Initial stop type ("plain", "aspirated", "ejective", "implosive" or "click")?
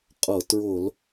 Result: ejective